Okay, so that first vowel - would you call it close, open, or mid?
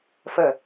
mid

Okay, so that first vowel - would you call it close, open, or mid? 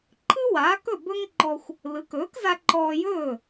close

